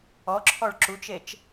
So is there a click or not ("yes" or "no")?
yes